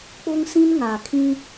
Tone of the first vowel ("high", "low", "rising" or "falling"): high